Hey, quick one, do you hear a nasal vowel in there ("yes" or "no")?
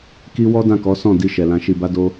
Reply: yes